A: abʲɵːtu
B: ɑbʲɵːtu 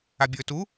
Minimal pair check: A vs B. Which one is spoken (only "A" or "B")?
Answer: A